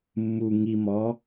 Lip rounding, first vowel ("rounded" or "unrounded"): rounded